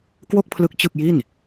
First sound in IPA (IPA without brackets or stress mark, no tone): k